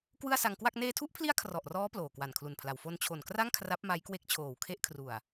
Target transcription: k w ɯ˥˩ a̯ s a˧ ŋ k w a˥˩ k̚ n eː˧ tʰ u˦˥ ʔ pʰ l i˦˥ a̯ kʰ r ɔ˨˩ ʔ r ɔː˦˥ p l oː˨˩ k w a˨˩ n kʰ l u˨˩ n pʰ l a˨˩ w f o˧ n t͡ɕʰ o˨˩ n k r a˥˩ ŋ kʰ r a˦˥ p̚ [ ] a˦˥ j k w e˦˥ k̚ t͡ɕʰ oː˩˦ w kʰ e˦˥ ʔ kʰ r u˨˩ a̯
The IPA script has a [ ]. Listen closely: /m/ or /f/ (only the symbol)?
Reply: m